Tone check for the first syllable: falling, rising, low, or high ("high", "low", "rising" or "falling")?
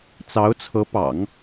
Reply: rising